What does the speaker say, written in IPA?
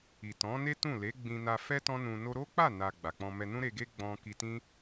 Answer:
i˨tɔ̃˨˦ne˦ tũ˦˨le˨˦ ɡ͡bĩ˧na˧fɛ˦ tɔ̃˦nũ˧no˦ ɾo˦k͡pa˦˨na˨ ɡ͡ba˨k͡pɔ̃˧mɛ˧ nũ˦ɾe˧ɡe˦ɡ͡bɔ̃˧ ki˧tĩ˦

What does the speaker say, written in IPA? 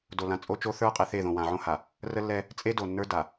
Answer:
do˨lã˨ t͡sʼo˦t͡ʃo˦ θə˞˦ qʼe˨θe˦˨ ðõ˨wã˨ʕõ˦ha˨ | rə˦lːɛ˦ | t͡sʼe˦do˨nːə˞˦ da˨

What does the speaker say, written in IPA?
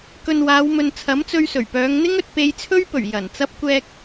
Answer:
kɵ˨n waː˨˧wmɵ˨nt͡sʰɐ˨˥mt͡sɵ˧ɥ sɵ˨˩ɥpœː˨˧ŋn̪ɪ˥ŋɵ˨t̚ pe˧jt͡sʰɵ˥ɥpɵ˨˩ɥ jɐ˨˩n t͡sɐ˧p̚kʷɛː˧k̚

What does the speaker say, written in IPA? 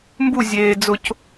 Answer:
mbu zʲeː d͡zʊc

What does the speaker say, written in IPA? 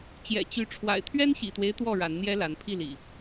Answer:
t͡ɕjɛ̰˨˩t͡ɕy˨˦ ʈ͡ʂʰwa̰˨˩ɪ̯t̪ʰɥɛ˦nɕḭ˨˩t̪we˦ɪ̯ t̪wɔ˥˨ɻa˨˦nn̪jɛ˦la˨˦n pʰi˥˨lḭ˨˩

